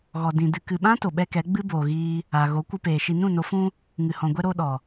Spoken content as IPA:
ɣ ɔ˨ d ĩ˨ d ɨ˨ k ɨ˨ ɓ ã˦ t o˨ ɓ ɛ˦ k ɛ˨˦ ɡ͡b ɨ˦ b oː˨ ɣ iː˧ | a˨ ɣ o˨˦ kʷ ɨ˧ p eː˨ ʃ i˨ n ũ˦˨ n o˨˦ f ũ˦ | ŋ ɨ˨ h ɔ̃˨ ɡʷ ɛ˦ ɾ o˦ ɗ ɔ˨

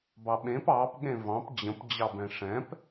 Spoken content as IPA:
b ɑ ɓ ẽ p ɑ p ɠ ẽ v ɑ̃ p d͡ʑ ə̃ p d͡ʑ ɑ b ɛ̃ ʂ ɛ̃ p

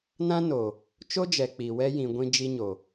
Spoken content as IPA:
n ã˦ n o˨ | t͡ʃ o˦ d͡ʒ ɛ˨ k͡p i˨ w ɛ˦ j ĩ˨ ɡʷ ĩ˦ d͡ʒ i˦ ɲ o˨

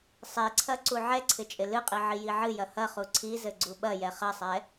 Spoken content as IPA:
sˤ e ǀʰ ɐ ǀ u ʕ ɛ ǀʰ ɪ t͡ʃʼ ɪ l ɨ qʼ i ʕ i j i ʕ ɨ j ɐ h ɐ χ u ǀʰ i z ɘ ɡ͡ǀ u ɓ ɐ j ɛ χ ɐ sˤ ɛ

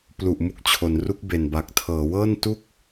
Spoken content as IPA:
p l u˨˩ ʔ m u˦˥ k̚ t͡ɕʰ o˩˦ n r u˦˥ k̚ b e˨˩ n b a˨˩ k̚ tʰ ɤː˩˦ w ɤː˥˩ n t u˥˩ k̚

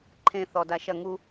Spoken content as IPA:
ǃʰ ẽ θ ɔ d a ʃ ɐ ŋ u

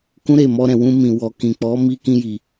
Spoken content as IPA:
k ũ˦ ɾ e˦˨ m ɔ˧ ɾ ɛ̃˨ w ũ˧ m ĩ˨ w ɔ˨ k ĩ˨ k͡p ɔ˨˦ m i˧ k ĩ˧ j i˨

